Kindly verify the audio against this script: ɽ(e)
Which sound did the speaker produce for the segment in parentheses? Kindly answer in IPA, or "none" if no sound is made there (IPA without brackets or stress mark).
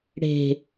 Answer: e̤